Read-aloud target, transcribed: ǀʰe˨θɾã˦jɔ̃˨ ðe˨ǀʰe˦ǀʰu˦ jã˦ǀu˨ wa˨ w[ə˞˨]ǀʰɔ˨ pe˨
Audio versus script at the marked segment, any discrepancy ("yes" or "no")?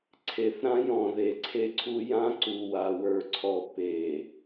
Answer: no